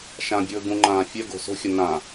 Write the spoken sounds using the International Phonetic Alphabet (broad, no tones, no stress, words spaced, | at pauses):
ʃãbʲɵː ɡũŋ͡ǃãː fʲœ ɡo̤so̤xʲə nã